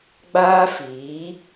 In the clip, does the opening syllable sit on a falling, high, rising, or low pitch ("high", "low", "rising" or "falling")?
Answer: high